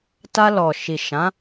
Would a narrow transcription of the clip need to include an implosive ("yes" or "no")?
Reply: no